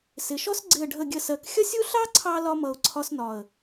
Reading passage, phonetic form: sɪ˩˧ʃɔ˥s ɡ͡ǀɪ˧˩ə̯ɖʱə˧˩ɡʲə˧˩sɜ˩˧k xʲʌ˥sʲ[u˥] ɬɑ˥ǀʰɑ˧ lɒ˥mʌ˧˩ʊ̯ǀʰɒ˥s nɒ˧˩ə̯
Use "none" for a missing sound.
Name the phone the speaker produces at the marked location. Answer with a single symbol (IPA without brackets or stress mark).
u˥